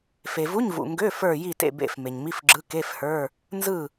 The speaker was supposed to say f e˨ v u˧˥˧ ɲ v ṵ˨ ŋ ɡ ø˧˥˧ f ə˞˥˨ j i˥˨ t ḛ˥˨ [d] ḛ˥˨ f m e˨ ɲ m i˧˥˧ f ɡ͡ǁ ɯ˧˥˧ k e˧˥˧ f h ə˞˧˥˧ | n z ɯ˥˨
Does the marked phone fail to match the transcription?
yes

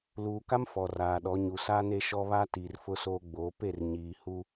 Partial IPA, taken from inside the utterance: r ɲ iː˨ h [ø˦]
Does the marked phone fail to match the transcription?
yes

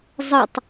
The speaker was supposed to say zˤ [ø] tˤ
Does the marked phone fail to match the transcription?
yes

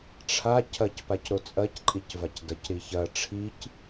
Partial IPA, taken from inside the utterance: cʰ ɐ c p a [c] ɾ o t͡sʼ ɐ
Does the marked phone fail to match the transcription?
no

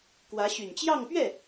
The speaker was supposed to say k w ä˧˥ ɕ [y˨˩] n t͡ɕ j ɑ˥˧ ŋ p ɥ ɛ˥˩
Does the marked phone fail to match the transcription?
no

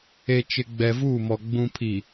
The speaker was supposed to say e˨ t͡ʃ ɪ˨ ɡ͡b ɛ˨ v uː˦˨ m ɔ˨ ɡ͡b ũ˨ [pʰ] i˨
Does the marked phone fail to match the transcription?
no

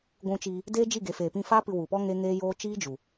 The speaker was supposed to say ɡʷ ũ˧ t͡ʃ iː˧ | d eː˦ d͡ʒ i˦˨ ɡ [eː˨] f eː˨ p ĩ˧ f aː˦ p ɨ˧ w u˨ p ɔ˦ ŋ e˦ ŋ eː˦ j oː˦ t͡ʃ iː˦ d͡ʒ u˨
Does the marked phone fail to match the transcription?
yes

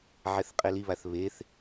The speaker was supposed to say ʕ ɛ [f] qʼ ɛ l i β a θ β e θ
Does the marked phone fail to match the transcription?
yes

